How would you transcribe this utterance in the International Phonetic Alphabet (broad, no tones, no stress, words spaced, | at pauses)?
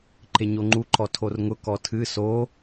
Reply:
ǃeɲoŋ͡ǃu ǃɔtʰorŋʊ kɔtʰɨ so